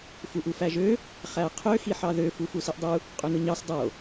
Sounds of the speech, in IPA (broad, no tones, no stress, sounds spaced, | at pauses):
f u ʔ u f æ ʒ ø | χ æ qʰ ø x i ħ ɑ ð ø f u f u s i ʔ dˤ u | qʼ ø n ɯ ɲ ɑ s dˤ o